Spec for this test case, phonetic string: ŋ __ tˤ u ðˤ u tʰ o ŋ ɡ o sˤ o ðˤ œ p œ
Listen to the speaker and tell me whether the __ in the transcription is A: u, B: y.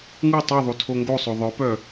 A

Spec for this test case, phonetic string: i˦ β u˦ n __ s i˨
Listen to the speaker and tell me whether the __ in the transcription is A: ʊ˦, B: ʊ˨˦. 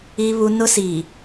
A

